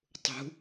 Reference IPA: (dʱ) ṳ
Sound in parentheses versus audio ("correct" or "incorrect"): incorrect